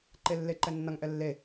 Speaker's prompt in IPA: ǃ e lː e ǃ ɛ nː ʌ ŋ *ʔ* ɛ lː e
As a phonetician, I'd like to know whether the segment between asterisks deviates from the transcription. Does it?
no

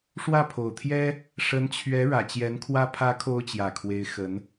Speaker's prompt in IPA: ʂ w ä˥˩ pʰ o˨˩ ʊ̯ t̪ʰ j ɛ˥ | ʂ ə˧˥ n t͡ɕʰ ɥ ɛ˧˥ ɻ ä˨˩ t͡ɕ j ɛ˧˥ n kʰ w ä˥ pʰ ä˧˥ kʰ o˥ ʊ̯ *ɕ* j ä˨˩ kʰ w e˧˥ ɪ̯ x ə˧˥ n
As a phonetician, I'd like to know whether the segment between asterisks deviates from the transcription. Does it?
yes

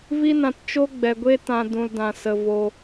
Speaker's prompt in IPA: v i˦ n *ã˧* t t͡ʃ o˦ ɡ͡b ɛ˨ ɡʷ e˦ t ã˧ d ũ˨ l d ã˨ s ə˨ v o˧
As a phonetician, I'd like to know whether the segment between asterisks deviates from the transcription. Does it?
no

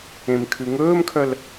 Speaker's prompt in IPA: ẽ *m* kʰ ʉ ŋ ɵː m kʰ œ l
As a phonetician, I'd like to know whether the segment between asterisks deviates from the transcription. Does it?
no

